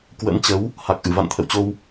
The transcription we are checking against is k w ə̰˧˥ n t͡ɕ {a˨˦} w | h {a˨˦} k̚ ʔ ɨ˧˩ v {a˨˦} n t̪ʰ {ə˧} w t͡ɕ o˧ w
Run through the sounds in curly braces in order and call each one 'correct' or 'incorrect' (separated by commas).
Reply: incorrect, incorrect, incorrect, incorrect